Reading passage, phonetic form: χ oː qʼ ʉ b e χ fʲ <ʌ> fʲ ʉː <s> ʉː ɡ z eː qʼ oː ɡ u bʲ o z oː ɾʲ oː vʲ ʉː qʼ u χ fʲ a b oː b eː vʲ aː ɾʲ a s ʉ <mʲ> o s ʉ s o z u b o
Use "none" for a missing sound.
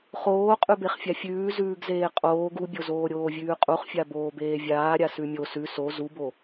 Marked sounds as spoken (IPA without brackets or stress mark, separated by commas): a, z, mʲ